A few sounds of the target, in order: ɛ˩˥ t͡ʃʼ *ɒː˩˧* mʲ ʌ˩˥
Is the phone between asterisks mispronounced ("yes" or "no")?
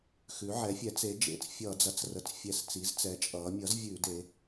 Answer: yes